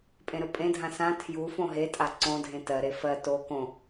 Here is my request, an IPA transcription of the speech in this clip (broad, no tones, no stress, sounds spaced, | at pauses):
pʼ ẽ ɾ ɵ pʼ ẽ dʱ ã s ã tʰ j u f õ ɦ e tʼ a ǀ õ dʱ ẽ t ɜ ɾ e f ɜ t o k õ